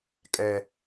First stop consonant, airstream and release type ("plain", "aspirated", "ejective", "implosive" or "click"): ejective